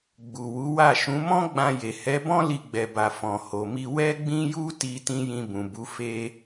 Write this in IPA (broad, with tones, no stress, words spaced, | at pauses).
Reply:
ɡ͡bu˨wu˨˦wa˦˨ ʃũ˨˦mɔ̃˦ ɡ͡bã˧je˨ hɛ˨˦bɔ̃˦ li˧ɡ͡bɛ˨ba˨ fɔ̃˨ho˨mi˧ wɛ˦ɡ͡bĩ˦ju˦ti˧ tĩ˦jĩ˧bũ˨bu˨˦ fe˦